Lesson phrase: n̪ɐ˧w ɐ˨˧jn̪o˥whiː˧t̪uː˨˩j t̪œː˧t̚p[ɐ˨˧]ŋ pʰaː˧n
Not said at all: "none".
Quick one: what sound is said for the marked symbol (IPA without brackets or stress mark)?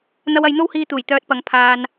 ɐ˨˧